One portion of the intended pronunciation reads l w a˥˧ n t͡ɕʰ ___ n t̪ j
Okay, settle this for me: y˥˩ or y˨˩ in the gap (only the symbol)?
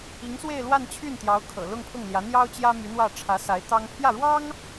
y˥˩